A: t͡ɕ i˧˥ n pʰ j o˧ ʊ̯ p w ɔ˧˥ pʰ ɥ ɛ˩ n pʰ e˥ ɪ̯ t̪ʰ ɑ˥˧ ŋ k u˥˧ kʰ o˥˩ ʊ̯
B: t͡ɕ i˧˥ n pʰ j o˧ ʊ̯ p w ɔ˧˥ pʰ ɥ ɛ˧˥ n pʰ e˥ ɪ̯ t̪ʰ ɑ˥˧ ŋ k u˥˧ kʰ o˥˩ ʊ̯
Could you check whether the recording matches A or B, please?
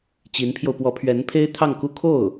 B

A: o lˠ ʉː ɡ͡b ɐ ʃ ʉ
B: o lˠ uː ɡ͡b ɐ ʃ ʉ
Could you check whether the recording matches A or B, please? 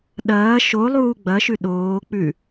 B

